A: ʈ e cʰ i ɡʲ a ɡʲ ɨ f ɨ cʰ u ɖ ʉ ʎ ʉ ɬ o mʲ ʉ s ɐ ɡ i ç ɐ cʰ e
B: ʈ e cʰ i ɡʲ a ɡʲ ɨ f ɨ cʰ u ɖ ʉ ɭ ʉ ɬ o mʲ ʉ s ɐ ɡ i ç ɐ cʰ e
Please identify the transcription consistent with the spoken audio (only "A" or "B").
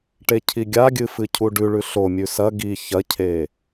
B